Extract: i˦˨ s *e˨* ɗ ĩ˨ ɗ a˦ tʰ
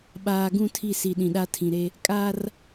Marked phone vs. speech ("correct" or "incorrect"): incorrect